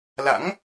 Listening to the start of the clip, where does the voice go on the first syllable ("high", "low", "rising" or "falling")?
rising